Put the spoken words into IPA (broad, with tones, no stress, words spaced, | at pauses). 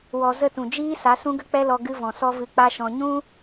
wɔ˧ zə˦˨tũ˨ d͡ʒiː˦sa˨˦ sũ˦ɡə˦k͡pɛ˦lɔ˧ ɡɨ˧vɔ̃˨sɔ˧ vɨ˧k͡pa˦ʃɔ̃˧ ɲũ˦